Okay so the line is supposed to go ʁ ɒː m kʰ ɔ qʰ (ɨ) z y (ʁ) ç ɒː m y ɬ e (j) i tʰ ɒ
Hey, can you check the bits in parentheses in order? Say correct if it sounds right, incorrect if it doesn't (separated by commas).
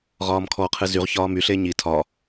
correct, correct, incorrect